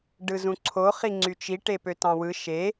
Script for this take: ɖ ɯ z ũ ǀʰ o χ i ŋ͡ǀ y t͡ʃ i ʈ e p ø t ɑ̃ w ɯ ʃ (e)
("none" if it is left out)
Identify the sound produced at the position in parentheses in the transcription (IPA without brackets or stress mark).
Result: e